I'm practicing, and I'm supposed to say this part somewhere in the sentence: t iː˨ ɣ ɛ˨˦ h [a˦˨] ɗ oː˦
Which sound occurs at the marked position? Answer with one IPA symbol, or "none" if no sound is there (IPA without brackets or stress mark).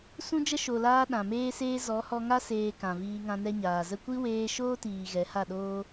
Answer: a˦˨